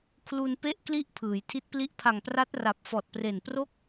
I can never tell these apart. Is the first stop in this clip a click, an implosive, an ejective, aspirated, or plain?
aspirated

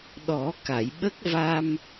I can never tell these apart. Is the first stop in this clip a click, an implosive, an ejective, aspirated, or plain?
implosive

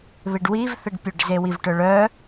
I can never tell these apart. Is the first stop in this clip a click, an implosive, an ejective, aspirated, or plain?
plain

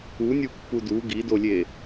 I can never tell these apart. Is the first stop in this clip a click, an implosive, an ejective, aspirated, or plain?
plain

